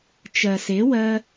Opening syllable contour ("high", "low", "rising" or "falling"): low